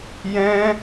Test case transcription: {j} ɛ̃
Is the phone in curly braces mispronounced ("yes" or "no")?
no